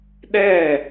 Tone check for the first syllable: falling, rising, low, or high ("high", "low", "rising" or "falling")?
falling